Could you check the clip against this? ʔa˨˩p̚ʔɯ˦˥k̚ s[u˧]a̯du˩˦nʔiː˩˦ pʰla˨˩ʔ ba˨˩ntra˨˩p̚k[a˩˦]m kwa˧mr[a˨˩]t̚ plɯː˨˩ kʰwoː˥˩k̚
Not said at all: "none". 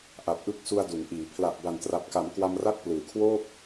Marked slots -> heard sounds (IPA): u˧, a˩˦, a˥˩

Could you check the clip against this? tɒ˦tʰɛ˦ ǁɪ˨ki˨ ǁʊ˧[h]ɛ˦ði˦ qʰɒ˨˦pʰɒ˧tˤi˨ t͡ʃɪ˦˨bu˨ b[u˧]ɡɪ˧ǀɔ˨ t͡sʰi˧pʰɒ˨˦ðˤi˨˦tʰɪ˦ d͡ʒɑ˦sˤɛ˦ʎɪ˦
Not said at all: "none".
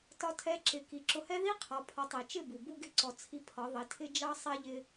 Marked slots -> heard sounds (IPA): h, u˧

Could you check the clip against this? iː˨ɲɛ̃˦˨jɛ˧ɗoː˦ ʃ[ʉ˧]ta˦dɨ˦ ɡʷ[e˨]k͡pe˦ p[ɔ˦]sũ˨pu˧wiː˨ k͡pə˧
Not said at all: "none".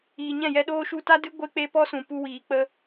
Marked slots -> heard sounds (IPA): u˧, e˦, ɔ˦

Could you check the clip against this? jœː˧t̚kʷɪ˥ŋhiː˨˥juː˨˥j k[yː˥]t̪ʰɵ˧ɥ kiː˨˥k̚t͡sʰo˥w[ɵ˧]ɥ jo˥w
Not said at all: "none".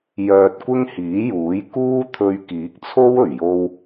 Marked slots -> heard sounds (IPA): uː˥, ɵ˨˩

